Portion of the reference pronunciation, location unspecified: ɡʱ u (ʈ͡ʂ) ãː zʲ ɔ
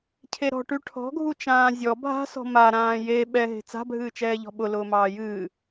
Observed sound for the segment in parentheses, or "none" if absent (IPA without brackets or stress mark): t͡ʃ